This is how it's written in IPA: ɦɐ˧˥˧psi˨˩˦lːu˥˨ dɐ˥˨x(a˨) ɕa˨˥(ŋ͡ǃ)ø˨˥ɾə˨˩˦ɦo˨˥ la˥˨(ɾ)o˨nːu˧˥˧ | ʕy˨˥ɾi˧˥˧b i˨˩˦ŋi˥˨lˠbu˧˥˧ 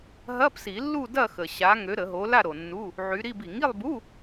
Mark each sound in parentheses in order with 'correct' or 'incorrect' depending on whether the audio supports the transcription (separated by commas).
incorrect, incorrect, correct